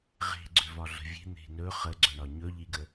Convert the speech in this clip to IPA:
ʁ e̤ ɡ͡ǀ ʏ v ɒ ɮ ə̤ vʲ e̤ n̪ e̤ n ɵ χ ə ɡ͡ǀ ɵ ɳ ɒ ɲ ɵ ʎ i ɡ ə

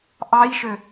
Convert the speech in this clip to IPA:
ʔ ɑ j ʃ ø

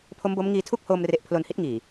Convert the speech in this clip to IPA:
pʰ o˦˥ m b o˦˥ m ŋ iː˧ tʰ u˥˩ k̚ h oː˧ m r e˨˩ ʔ pʰ l o˧ n h i˦˥ t̚ ŋ iː˨˩

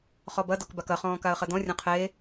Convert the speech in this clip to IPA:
χ ɔ b ɐ d ɔ k b a k ɐ χ ɔ̃ː k a ə̯ χ ɐ d ɔ̃ rʲ ɔ̃ qʰ eː

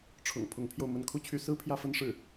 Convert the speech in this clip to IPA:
ʈ͡ʂʰ ʊ̰˨˩ ŋ pʰ ʊ˧˥ ŋ pʰ j o˧ ʊ̯ m ə˥˩ n kʰ u˥ t͡ɕʰ y˧˥ s ɹ̩˥ pʰ j ä˥˧ f ə˥˧ n ʂ ɻ̩˥˩

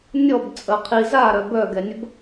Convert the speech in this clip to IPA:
nʲ ɔ b t͡sʼ ə qʰ i z a ɾ œ b œ ɡ ɛ nʲ ə b

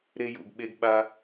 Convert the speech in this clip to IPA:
ɾ e˧ j ṵ˨ ɡ ɓ e˧ ɡ ɓ a˧

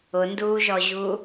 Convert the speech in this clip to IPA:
ʊ n d uː ʒ ɔ ʑ u

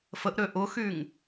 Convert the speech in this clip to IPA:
f ə ʔ ɾ ø ʔ ʊ x y ŋ

